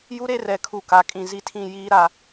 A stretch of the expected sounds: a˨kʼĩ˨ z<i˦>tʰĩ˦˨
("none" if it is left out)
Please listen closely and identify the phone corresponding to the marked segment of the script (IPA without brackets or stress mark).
i˦